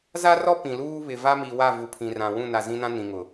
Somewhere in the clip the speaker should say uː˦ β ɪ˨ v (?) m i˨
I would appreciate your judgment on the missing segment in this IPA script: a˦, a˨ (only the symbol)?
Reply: a˦